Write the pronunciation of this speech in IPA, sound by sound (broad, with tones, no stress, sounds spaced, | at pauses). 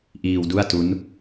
ʔ iː˧ w d u˥˩ a̯ t u˦˥ n